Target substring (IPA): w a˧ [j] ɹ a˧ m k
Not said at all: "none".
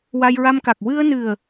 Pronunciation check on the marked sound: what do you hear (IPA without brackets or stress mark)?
j